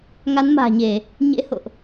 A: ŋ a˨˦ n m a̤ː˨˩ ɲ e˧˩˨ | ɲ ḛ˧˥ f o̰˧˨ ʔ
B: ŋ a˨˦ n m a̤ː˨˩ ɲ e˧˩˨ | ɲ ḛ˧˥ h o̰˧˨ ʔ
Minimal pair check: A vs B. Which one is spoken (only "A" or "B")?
B